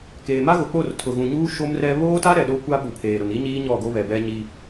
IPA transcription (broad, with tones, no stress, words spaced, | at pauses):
keː˨ma˦ɣʊ˨k͡po˦˨r tʰʊ˨ɣũ˨ɲuː˦ ʃo˦mrɛ˦ βoː˦ta˦ ɾɛ˨ɗo˦kʷa˦ ɓu˨pʰeː˨ ɾʊ˨ni˦ɲiː˦ ɲɔ˦˨ɡo˦βɛ˨bɛ˦ ɲi˦